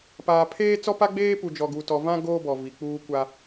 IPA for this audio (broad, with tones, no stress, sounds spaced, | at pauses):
p aː˨ pʰ eː˦ t͡s ɔ˦ p a˦ ɡ͡b eː˦ p u˨ d͡ʒ ɔ˨ ɡ u˨ t ɔ˨ v ã˦ ɡ oː˦ b ɔ˨ v i˨ k͡p uː˦ kʷ a˦